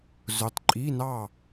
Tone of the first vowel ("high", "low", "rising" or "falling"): rising